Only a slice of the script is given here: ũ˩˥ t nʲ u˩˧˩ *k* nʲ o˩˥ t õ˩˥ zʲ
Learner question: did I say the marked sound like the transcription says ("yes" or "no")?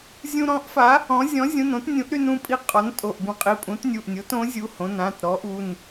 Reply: no